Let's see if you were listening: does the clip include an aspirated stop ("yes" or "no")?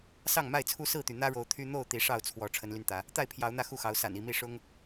yes